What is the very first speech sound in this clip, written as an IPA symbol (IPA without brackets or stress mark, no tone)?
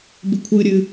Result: b